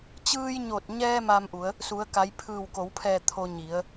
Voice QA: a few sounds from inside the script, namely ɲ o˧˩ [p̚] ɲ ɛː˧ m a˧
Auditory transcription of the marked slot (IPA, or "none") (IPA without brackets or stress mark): t̚